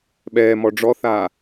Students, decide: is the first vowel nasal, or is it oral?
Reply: oral